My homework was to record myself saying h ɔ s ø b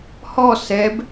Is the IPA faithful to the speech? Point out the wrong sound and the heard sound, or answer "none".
ø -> ɛ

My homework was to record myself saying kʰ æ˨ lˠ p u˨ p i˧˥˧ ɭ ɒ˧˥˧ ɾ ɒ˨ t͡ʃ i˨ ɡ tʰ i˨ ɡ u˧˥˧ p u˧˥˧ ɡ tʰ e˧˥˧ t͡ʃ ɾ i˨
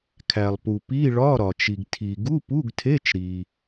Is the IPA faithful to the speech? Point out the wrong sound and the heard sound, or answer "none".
none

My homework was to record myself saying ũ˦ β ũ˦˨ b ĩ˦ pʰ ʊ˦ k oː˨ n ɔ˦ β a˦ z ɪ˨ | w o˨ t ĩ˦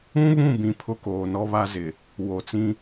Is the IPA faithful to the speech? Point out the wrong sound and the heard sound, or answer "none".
t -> t͡s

